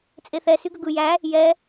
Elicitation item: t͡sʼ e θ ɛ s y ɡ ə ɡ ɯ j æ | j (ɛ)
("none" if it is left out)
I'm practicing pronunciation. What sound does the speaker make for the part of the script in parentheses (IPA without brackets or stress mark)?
ɛ